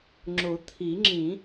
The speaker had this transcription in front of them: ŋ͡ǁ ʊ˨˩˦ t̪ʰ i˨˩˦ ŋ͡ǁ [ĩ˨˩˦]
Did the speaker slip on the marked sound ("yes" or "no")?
no